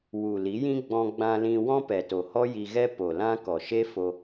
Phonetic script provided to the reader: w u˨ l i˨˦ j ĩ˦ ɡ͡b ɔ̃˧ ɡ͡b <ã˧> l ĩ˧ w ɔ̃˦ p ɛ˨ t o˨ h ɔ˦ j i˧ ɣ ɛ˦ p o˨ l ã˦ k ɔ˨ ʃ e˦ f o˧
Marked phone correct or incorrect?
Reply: correct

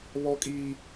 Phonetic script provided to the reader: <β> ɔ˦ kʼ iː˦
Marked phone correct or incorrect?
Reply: correct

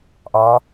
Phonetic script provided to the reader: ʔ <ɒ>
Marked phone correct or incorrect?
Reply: correct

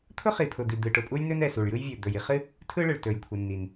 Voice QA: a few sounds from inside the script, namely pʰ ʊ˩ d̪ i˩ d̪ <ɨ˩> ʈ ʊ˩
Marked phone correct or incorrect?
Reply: correct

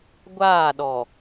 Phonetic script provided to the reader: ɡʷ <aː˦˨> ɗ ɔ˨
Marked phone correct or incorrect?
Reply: correct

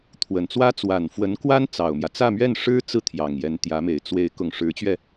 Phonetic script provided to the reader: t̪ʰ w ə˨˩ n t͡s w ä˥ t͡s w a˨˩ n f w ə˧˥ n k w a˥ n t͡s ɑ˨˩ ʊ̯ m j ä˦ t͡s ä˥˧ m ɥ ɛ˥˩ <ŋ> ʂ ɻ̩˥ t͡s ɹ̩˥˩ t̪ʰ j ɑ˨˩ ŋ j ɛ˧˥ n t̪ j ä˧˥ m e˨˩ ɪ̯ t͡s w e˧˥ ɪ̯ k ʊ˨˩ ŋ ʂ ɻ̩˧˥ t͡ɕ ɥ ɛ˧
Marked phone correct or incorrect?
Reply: incorrect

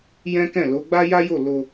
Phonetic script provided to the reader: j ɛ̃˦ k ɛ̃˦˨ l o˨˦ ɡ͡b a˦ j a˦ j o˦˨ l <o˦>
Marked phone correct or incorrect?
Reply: incorrect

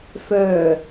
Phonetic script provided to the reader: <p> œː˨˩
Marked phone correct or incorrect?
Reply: incorrect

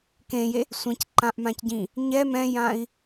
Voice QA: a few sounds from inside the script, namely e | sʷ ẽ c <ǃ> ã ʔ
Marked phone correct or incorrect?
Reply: correct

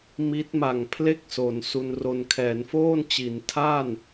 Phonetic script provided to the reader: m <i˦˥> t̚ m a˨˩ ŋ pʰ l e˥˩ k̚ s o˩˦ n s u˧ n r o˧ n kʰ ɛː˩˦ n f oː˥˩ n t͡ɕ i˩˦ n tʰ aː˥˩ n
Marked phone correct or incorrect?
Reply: correct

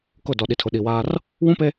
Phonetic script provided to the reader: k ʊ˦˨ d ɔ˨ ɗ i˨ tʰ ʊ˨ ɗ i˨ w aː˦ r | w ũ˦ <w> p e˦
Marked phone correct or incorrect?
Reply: incorrect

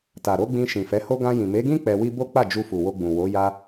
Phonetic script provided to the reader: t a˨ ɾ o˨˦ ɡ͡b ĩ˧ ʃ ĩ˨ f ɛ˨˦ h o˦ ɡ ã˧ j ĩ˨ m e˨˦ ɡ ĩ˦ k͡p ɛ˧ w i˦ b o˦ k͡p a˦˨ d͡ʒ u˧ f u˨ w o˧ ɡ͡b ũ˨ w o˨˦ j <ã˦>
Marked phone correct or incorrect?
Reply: incorrect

